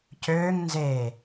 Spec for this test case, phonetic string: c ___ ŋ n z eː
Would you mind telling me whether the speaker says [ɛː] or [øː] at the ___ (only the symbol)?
øː